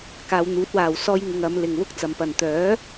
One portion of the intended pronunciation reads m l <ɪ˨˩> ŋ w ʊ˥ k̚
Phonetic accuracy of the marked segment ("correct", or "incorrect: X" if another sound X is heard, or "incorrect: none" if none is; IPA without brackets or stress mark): incorrect: ɪ˨